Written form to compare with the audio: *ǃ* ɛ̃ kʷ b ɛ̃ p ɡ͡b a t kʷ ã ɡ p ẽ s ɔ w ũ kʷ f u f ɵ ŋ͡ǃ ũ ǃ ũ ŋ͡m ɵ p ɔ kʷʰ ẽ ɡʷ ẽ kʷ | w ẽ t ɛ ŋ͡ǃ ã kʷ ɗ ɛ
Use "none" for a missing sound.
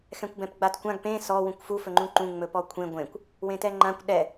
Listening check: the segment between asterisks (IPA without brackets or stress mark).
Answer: x